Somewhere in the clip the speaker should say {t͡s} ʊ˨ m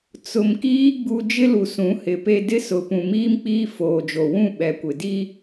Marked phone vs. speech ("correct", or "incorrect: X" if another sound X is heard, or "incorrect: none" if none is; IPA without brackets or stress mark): correct